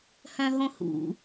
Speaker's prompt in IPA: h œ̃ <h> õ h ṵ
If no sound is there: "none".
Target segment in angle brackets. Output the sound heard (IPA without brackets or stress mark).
ɦ